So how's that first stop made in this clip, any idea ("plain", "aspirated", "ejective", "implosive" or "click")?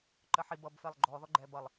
click